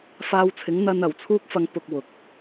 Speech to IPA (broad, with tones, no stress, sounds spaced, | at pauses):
f aː˧ w t͡sʰ ɪ˨˥ ŋ n̪ ɐ˧ n ɐ˨˩ w t͡sʰ uː˥ k̚ f ɐ˧ ŋ p ʊ˧ k̚ w ʊ˨˥ k̚